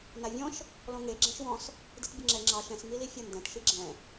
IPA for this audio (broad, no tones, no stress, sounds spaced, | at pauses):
n a vʲ ɔ̃ ʃ | l ɔ̃ ŋ e ɡ͡ǁ ɛ̃ ʃ w ɔ̃ s | d i t bʲ ʌ ŋ͡ǁ ɛ ŋ͡ǁ ɑ ʃ ɛ̃ s ŋ i l i fʲ ʌ n d ɛ̃ t ʃ i ɡ͡ǁ ɛ̃